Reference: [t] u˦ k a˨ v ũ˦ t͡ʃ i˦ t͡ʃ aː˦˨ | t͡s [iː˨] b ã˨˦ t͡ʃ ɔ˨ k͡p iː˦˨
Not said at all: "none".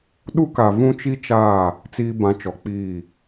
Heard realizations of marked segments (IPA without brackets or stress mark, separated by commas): ɗ, iː˨